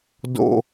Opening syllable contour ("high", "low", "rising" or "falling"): high